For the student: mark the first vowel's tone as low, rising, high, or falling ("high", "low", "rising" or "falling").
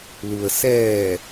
low